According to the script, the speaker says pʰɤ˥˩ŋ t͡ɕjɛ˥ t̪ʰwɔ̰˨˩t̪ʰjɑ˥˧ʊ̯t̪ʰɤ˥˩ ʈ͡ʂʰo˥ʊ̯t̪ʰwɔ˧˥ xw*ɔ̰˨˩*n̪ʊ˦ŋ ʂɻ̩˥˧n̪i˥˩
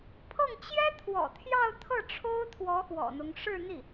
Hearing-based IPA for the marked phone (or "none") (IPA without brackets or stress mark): ɔ̰˨˩